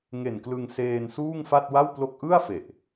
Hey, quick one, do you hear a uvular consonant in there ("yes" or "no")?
no